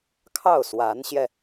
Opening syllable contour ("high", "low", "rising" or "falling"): falling